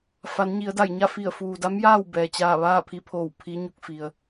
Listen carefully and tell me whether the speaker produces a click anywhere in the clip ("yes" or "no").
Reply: no